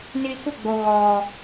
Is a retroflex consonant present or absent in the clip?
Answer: absent